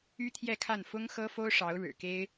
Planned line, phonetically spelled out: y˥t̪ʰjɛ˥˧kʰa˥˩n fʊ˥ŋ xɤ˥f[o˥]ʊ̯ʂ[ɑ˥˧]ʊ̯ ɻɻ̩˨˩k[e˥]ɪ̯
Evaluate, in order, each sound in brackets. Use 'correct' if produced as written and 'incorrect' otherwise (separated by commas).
correct, incorrect, correct